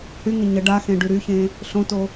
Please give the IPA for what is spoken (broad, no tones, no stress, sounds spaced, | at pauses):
h y ŋ ə ɲ ə ɖ a x ẽ ɖ y ɾ y ç ẽ | ɬ õ t o